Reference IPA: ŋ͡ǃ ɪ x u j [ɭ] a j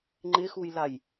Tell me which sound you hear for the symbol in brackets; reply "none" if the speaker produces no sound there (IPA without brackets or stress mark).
l